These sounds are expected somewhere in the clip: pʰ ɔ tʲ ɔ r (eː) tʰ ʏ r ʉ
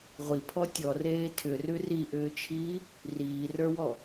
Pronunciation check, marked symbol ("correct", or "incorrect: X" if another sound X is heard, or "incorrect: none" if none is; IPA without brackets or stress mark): correct